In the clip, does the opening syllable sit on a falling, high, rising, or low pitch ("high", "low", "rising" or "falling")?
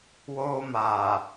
high